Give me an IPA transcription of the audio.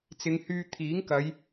t͡sɪ˨˧ŋhyː˧ t̪ʰiː˨˥ŋkɐ˨˧j

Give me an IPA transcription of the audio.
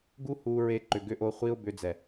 ɡu˦hu˧ɹe˧ǃʏ˨ ɡʏ˧ʔo˧ χʷi˧ʊ̯ bʏ˧d͡zɛ˨

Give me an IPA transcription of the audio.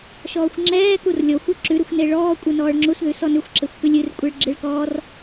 ʃɔːxʷŋ͡ǁɛːkur lʲɔxʷ ʉǁʉɾɨxʷ neɭɔːkʷʼɨ nɔːɭŋ͡ǁusðʉ sɔnʉxʷǁexʷ kʉlʲɨrkʷʼeɭ ɡ͡ǁɨɭkɔːr

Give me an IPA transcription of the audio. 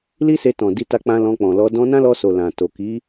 li˦se˧tɔ̃˨di˧ ta˦k͡pã˦lɔ̃˧ k͡pɔ̃˨lɔ˧ dɔ̃˧nã˦lɔ˧so˨ lã˨ to˨ki˨˦

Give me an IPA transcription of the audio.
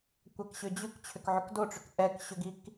kʷakɕʏd͡ʑʉk t͡ɕʰʏkʕʏkdoʈ͡ʂʏk ʔɛkɕʏɡik

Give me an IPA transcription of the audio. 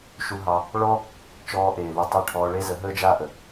ʃu˧ɦɑ˧ | ɭɔ˦ | t͡ʃɔː˧ʔeː˨lu˧tˤe˦˨ ʈʰɔː˧ɭe˦ zə˨˦ɦəː˦d͡ʒaː˦ʔə˨

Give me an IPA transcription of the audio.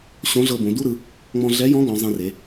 ɕõ˧˥ɮɤ˧bõ˩˧ du˥ɾɯ˩˧ | ŋ͡mɔ̃˧ɮɛ˧˥jɔ̃˧˥ ɡɔ̃˩˧ zˤẽ˧re˩˧

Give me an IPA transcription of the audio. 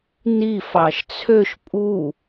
ni fɑʃt͡sʰøʃ pʼu

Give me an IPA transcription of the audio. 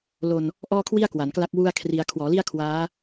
lo˧n | ʔɔː˥˩kʰwi˥˩a̯ kwa˩˦nkla˥˩k̚wu˥˩a̯kʰri˧a̯ kʰwɔː˩˦li˥˩a̯kʰwaː˦˥

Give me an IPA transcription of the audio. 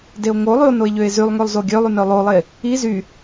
deo̯ŋolˠyo̯ noe̯ʎøe̯zylˠŋølˠ zoɡʲølˠyn œlˠolˠe | i zy

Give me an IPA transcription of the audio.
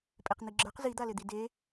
pʼeqn̪iɡ͡ǁə˞q zid̪alɪd̪i de

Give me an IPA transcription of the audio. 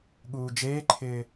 ɠuːd͡ʒeːǃʰɪː

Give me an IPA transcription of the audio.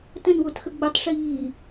tə̃nwotxə ɡ͡bətˤʂiː

